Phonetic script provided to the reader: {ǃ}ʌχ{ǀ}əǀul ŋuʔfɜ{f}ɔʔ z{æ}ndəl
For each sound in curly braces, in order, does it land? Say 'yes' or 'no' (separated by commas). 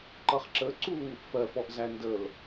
yes, no, yes, yes